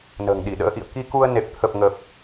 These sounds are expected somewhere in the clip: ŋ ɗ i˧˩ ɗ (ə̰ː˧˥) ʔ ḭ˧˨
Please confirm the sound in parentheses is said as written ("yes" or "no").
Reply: yes